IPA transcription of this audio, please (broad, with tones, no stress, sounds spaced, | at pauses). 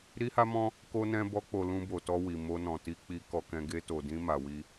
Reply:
ɾ i˦ h a˦ m ɔ̃˦ | k o˦ n ɛ̃˦ b ɔ˦ k͡p o˧ l ũ˧ b o˨ t ɔ˧ w i˨ m o˧ n ɔ̃˨ t i˧ k͡p i˧ k ɔ˧ k ɛ̃˧ ɡ e˧ t o˨ d ĩ˧ m a˨ w i˧